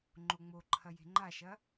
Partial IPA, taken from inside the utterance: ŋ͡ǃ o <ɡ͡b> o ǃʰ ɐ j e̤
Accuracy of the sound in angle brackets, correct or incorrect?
incorrect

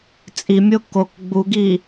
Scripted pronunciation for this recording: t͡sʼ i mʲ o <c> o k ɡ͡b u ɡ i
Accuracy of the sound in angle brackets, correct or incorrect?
incorrect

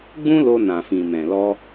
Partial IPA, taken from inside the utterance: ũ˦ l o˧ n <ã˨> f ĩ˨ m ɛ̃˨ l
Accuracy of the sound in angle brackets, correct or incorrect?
correct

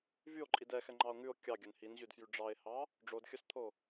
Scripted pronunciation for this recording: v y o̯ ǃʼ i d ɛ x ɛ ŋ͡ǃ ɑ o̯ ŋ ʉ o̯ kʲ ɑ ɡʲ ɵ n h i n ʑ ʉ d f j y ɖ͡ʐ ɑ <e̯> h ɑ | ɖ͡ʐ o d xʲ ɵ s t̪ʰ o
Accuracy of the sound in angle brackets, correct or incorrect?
correct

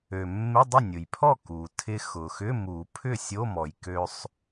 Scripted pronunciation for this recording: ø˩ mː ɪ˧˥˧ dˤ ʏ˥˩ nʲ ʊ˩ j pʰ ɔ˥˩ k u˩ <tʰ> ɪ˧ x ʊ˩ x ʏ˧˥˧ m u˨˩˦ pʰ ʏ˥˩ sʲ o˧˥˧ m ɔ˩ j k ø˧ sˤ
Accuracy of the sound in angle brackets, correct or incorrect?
correct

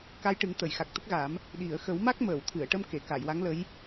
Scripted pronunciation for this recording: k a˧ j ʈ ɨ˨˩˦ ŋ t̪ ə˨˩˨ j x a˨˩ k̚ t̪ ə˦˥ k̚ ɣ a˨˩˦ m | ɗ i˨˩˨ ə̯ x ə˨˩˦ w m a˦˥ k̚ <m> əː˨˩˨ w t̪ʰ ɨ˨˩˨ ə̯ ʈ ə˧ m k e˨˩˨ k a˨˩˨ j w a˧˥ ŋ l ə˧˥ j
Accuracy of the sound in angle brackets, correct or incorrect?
correct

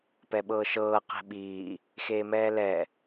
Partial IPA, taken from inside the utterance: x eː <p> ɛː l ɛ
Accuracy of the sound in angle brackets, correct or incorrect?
incorrect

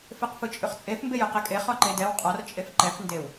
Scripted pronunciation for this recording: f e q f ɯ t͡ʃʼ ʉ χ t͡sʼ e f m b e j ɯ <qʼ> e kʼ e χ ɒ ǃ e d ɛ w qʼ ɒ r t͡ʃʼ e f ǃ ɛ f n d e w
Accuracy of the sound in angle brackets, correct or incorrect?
incorrect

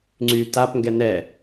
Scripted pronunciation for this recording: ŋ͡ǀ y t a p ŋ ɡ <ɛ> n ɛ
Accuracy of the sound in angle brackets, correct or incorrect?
correct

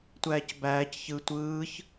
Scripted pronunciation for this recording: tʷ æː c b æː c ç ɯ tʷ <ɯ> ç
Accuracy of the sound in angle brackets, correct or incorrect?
incorrect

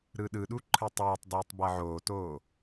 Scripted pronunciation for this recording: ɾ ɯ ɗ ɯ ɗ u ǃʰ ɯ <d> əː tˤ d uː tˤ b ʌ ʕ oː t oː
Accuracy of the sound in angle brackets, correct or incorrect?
incorrect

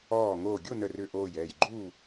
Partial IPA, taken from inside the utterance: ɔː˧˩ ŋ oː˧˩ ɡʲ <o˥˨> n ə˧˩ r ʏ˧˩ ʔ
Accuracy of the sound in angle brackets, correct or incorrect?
correct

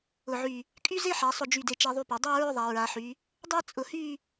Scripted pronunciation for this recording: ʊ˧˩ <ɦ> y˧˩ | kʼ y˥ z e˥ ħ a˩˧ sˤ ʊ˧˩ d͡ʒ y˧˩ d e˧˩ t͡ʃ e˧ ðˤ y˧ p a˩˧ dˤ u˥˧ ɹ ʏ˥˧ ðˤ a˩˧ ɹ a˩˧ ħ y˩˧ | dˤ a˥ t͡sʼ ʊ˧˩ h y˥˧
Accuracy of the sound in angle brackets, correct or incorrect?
incorrect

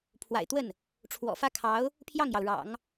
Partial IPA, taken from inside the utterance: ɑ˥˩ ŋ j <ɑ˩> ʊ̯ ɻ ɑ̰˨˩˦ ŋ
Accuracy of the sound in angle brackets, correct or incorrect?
correct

